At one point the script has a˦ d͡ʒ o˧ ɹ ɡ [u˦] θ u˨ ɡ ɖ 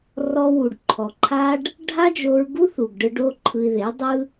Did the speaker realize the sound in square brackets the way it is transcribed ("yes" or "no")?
yes